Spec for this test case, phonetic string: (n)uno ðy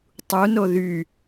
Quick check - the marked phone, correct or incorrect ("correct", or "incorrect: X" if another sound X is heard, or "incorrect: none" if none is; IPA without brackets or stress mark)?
incorrect: tˤ